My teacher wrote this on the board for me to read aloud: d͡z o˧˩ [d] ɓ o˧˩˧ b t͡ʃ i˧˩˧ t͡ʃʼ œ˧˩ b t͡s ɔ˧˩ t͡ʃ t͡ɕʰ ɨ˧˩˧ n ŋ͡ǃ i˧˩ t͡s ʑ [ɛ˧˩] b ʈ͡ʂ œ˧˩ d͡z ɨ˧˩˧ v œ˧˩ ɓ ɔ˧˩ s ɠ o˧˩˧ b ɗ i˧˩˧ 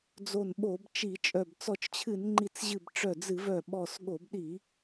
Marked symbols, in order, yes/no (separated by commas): no, no